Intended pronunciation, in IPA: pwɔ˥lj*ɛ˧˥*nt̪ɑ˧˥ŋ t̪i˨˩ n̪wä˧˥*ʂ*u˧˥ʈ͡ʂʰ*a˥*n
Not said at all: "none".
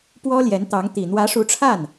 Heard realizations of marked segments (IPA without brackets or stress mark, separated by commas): ɛ˧˥, ʂ, a˥˩